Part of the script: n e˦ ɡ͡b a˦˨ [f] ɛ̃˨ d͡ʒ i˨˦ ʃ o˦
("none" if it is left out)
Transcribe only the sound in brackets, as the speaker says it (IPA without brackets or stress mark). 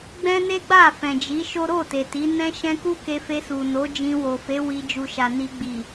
f